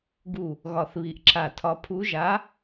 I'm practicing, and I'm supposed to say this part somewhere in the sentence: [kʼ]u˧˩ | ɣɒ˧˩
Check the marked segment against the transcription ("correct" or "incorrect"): incorrect